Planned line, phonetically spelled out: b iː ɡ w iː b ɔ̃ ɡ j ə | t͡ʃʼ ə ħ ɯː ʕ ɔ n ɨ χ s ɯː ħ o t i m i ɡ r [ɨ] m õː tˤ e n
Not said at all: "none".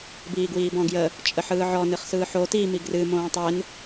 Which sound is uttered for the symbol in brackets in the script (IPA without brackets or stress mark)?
ɨ